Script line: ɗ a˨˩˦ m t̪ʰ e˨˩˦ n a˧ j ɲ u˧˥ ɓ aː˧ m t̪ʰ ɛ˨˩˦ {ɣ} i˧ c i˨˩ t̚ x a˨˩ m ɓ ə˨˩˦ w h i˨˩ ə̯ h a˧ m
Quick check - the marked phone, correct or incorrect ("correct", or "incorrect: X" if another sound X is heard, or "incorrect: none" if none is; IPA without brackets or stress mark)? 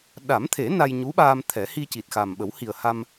incorrect: h